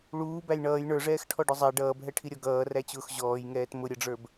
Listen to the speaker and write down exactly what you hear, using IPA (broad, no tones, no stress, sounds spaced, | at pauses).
ɭ uː b æ j ɳ ʌː j ɳ ə˞ ʐ ɛː x ʈʰ ɔ ɖ ʊ zˤ æ ɖ ʌː b ɦ ɛ ʈʰ i ɾʲ ɔ ɡ ʌː r æ t͡ɕ ʊː x ʑ ɔː j ŋ ɛː t m ʊ ɾʲ ʌ ɖ͡ʐ ə˞ b